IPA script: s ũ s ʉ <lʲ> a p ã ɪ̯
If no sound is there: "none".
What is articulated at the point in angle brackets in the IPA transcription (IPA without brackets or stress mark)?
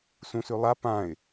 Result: lˠ